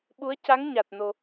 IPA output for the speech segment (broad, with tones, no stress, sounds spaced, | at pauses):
ɓ u˧˥ ə̯ c a˧˥ ŋ ɲ a˨˩ t̚ n o˨˩